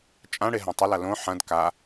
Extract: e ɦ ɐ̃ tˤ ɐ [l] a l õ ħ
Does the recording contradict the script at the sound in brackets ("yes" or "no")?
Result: no